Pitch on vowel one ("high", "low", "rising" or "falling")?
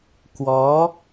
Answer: rising